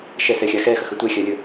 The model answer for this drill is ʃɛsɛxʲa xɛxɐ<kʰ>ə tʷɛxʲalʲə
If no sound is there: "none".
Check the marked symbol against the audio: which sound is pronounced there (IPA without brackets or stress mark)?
x